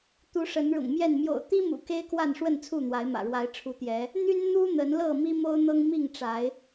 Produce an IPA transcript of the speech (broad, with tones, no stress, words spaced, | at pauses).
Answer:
t̪u˨˦ ʂə˨˦nɻʊ̰˨˩ŋmjɛ˥˨n mjo̰˨˩ʊ̯t̪i˦mṵ˨˩ ke˦ɪ̯kwa˥˨n ʂwə˥˨nt͡sʰu˥˨n̪wa˨˦ɪ̯mä̰˨˩ ɻwa˨˦ɪ̯ ʈ͡ʂʰu˨˦t̪jɛ˨˦ | n̪y˦n n̪u˦ n̪ə˨˦nlɤ˥˨ mi˦mo˦ʊ̯n̪ɤ˦ŋmi˥˨ŋ ʈ͡ʂa˨˦ɪ̯